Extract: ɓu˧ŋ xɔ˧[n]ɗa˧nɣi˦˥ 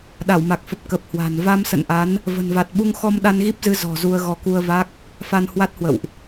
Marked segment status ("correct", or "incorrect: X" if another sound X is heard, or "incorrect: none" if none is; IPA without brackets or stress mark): incorrect: m